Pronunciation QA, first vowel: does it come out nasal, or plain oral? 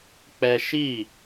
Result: oral